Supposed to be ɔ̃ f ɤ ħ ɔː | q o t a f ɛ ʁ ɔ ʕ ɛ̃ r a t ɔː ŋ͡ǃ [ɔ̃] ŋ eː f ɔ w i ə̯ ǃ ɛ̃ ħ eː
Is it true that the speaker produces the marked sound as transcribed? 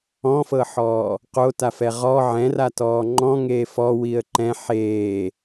yes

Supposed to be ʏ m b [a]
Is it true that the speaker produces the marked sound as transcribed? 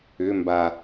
yes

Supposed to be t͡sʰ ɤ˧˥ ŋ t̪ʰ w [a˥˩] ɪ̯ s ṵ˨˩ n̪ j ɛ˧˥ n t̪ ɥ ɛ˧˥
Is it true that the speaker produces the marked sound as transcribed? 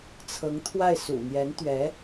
yes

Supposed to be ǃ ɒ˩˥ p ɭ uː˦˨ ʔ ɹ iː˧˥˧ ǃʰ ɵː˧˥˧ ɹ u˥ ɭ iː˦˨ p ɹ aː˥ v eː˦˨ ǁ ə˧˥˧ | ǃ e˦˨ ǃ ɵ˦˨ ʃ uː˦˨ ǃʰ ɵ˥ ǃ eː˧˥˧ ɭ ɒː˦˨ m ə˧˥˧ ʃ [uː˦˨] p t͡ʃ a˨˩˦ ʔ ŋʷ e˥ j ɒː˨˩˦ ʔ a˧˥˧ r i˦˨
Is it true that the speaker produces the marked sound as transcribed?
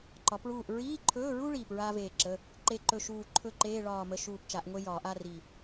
yes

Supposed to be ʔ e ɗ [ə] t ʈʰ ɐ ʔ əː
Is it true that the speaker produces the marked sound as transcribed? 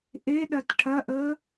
no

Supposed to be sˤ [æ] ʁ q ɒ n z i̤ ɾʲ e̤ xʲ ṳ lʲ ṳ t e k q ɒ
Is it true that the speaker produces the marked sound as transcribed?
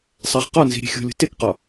yes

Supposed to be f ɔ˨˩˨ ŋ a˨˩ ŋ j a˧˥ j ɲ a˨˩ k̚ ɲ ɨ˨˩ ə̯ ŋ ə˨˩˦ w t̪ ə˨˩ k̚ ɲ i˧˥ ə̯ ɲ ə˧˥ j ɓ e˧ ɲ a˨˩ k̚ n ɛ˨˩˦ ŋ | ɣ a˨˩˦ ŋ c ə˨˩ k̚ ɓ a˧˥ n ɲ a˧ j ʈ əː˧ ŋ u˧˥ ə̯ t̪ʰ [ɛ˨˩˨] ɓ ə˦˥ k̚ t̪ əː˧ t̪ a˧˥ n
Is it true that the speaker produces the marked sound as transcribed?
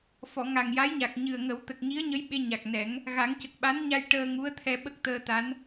no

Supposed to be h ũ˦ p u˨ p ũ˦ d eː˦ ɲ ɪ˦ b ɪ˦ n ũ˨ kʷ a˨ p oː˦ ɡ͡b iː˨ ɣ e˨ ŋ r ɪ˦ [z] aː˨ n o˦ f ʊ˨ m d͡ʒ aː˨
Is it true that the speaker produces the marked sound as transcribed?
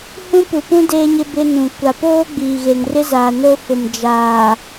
yes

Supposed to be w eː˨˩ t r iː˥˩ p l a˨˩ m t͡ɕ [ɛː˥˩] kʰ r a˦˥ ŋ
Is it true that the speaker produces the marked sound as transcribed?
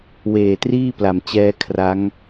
no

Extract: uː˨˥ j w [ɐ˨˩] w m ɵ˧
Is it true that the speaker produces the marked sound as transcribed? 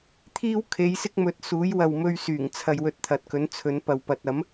no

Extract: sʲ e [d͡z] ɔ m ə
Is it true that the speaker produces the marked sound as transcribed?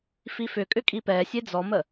yes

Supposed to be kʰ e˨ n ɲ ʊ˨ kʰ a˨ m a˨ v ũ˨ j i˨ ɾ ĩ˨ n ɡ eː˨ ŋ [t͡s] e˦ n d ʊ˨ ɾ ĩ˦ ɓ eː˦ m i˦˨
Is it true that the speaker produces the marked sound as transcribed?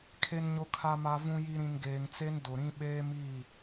yes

